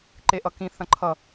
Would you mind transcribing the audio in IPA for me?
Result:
ǃeʔʌkĩ θɐ̃ǃʰʌ

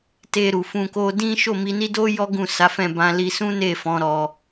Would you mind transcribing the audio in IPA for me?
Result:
te˧ɾu˨fũ˧ ko˧dĩ˦ ʃo˦˨mi˧ni˦do˦ jɔ˦ɡũ˦˨sa˨˦fɛ̃˦˨ bã˧li˧ sũ˦ne˦˨fɔ̃˨˦ ɾɔ˧

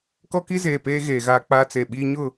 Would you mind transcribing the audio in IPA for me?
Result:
kɔ˦ki˦zeː˨peː˦ ɣeː˨ɣaː˦k͡paː˦t͡se˨ ɓiː˦ɲʊ˦˨

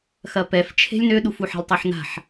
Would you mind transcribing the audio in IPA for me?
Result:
xɐpɛf t͡ʃʰe̤lʲnøɗuf uħa̤lʲtˤaħna̤ħ

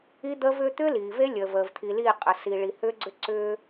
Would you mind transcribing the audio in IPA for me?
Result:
i˦d̪əː˦vʏː˦ t̪ʏː˦liː˨ve˦ lʲəː˨vəː˨vt̪ʰi˨liː˦˨ qʼə˨si˨ɭi˨ hʏː˦ɡ͡ǀʏ˦ ǀʏː˦

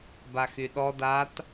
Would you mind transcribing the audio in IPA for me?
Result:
baxyɗɔ dat

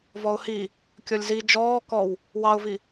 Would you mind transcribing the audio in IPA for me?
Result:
vɔʊ̯hi | kʲɔlʲzi d͡ʒɔː kɔw | wɑʊ̯vi

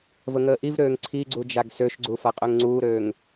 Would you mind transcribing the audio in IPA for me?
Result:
vəŋəːʔivɾøːŋ ǀʰiɡ͡ǀu d͡ʒaɡsøʃɡ͡ǀu faqʼøŋŋ͡ǀuːɾøːŋ

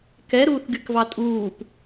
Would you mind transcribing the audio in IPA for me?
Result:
kɛɾuːθɡykvɑ tʼuːp

